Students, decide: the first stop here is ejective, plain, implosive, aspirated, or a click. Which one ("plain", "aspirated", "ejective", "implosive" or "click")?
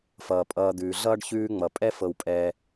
ejective